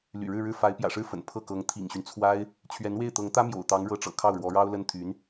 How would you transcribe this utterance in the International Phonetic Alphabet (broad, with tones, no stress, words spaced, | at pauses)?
ly̰˨˩ɻɻ̩˥˧ɻɻ̩˥˩ fa˧˥ɪ̯pjä̰˨˩ʂɻ̩˥˩fə̰˨˩n pʰɤ˥˩kɤ˧˥ŋ t̪ʰḭ˨˩ŋɕy˦nt͡sʰwa˥ɪ̯ | t͡ɕʰɥɛ˧˥nwe˥˩ɪ̯t̪ɤ˧˥ŋ t̪ä˥mjo̰˨˩ʊ̯ t̪ɑ˧˥ŋɻɤ˧˥ʈ͡ʂɤ̰˨˩ kʰɑ˥˩ʊ̯ɻwɔ˧˥ɻɑ˥ʊ̯lə˥n t̪ʰy˧˥n